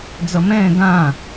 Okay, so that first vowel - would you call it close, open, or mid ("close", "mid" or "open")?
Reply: mid